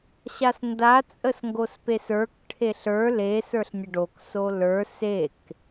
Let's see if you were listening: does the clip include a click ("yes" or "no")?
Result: no